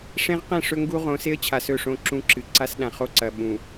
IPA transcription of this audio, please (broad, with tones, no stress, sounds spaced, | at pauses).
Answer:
ʂ ẽ˦ ʁ q ẽ˦˨ ʂ ɵ˦ ŋ ɡ u˦ ʁ õ˨˦ s e˦ ə̯ t͡ɕʰ a˨ s ɵ˦˨ ʂ õ˦ ǁ ũ˦ ǁ ɨ˨ ǀ a˦ s ɗ ã˨ χ o˦ ǀ ɐ˨ ɓ ũ˨